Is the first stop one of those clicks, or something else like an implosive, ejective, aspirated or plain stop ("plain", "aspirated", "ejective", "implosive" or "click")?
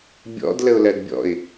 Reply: plain